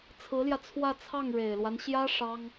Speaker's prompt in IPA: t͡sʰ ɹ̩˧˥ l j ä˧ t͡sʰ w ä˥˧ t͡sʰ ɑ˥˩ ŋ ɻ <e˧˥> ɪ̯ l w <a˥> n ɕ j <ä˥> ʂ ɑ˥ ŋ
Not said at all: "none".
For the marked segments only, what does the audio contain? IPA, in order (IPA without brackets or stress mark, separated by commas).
e˨˩, a˦, ä˥